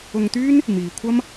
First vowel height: high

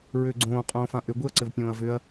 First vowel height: high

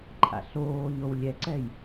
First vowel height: low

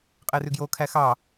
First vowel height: mid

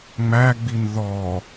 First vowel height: low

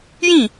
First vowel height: high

